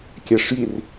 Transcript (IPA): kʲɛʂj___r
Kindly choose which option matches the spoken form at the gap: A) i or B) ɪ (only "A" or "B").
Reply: A